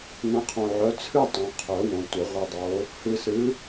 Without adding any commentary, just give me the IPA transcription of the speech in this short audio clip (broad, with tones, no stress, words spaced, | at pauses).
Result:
nə̃˨˦qʰõ˨ʕœ˨˦ t͡sʰɨ˥˧tˤõ˨qʰœ˨˩˦ wõ˨tʷə˨˩˦ ʁʷɨ˨dˤo˨˦ | hɨ˨sɨ˨˦